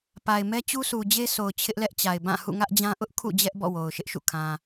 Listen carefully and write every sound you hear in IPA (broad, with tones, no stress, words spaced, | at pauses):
pa˨ɪ̯ mɛ˦t͡ɕu˦sʰu˨ d͡ʑe˦sʰo˨ʊ̯ t͡ɕʰɪ˦ʔlɛ˦ʔt͡ɕa˨ɪ̯ bã˦˨ hṵ˦˨ŋä˦ʔd͡ʑã˦ ʔʊ˦ʔkʰṵ˦˨ d͡ʑɛ˦ʔ bɔ̰˦˨wo˨ʊ̯ʃɪ˦ʔʃṵ˦˨ kʰã˨